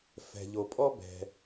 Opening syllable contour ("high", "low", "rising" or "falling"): low